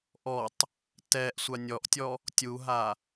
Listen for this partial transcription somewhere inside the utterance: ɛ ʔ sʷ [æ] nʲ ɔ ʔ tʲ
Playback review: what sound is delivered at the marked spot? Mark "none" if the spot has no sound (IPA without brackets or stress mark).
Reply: a